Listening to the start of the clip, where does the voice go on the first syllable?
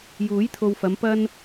rising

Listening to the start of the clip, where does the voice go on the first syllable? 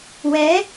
rising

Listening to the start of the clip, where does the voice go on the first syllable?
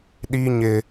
high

